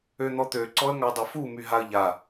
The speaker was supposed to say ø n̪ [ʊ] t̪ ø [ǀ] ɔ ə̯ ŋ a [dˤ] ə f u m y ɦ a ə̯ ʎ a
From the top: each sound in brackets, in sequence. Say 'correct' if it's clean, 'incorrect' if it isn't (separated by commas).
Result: incorrect, correct, correct